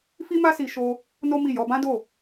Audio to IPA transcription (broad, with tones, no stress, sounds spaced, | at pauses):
f i˦ m a˦ s i˧ ʃ o˧ | n o˦ m i˦˨ j ɔ˧ b ã˦ d o˦˨